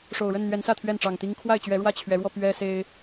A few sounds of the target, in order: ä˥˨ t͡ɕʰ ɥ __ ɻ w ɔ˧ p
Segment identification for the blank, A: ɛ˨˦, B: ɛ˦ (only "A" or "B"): A